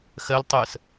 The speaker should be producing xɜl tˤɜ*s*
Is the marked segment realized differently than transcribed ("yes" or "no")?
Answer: no